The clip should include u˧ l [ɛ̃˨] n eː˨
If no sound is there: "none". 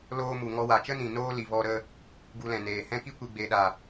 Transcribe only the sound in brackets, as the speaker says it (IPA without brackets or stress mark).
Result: ɛ̃˨